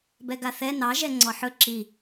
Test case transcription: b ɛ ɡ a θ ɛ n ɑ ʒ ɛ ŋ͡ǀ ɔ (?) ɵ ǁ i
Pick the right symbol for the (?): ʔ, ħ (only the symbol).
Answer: ħ